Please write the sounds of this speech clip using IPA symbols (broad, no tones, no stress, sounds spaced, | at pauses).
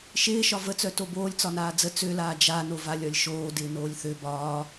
ʃ ɪː ʃ ɒ v ə t͡s œ t o b oː lʲ t͡s ɒ n aː d͡z ə t͡s ø l aː d͡ʒ a n o v a lʲ ɒ lʲ ʃ oː d ɪː n oː lʲ θ ø b ɒː